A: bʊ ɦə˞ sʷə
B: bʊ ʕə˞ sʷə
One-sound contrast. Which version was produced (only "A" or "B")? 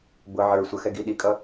B